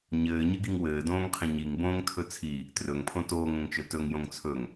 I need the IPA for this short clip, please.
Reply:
ɲ ɘː ɲ ɘ ɡ i ŋ w ɘː d õː ŋ qʰ ĩ ɲ i ŋ b õː ŋ tʰ ɵ t͡sʰ i | t r ɵ ŋ pʰ õ t oː ŋ õ ŋ t͡ʃ ɵ t ɵ ŋ j õ ŋ t͡sʰ ɵ ŋ

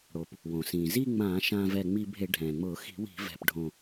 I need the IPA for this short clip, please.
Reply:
ɽ o˩ p | w õ˩ s ĩː˩ z i˥˧ ŋ͡m ãː˧˩˧ ʃ ãː˧ v ɛ˧˩ ŋ͡m i˧ bʱ e˧˩˧ ɖʱ ɛ̃ː˩ ŋ͡m ʊː˧˩˧ x i̤˧˩˧ w i̤˧˩˧ v ɛ̤˧˩ p ɖʱ õ˧˩

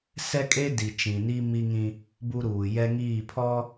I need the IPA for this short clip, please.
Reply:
s ɛ˦ kʼ e˦ d i˨ t͡ʃ ĩ˨ n i˦ m i˦ ŋ ĩ˦ | b u˦ ɾ uː˨ j ɛ˦ ŋ iː˦˨ pʰ ɔ˦

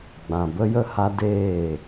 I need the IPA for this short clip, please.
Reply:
ɡ͡b ã˨ b ə˦ j ə˦ h a˧ d eː˦˨

